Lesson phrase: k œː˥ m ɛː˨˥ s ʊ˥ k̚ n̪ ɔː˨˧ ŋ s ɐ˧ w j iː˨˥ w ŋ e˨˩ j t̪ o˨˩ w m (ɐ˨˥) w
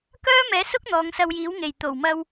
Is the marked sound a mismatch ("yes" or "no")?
yes